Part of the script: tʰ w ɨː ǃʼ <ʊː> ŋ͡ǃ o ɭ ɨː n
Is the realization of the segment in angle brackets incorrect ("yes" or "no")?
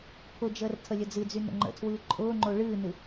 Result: no